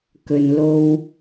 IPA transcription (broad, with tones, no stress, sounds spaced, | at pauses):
k ɵ˨ n l o˧ w